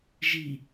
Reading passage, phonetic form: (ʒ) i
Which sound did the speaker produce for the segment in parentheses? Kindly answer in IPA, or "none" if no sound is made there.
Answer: ʒ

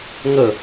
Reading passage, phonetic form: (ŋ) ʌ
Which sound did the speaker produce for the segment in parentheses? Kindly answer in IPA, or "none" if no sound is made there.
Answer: ŋ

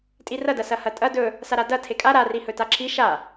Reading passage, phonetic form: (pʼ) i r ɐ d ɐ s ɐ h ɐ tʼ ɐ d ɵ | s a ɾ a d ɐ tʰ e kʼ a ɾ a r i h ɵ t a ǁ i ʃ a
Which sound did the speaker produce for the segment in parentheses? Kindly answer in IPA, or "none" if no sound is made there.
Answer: tʼ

